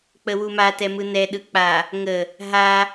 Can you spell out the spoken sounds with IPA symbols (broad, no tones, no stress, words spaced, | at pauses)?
k͡pəwuma tɛmɯnɛ ɗɯk͡pa | ŋə | ɦa